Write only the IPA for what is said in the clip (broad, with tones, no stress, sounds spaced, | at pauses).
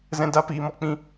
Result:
z ɛ̃˧ d a˧ p iː˨ m ɔ˧ k͡p ĩ˧